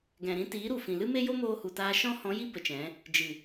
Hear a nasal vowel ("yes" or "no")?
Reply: yes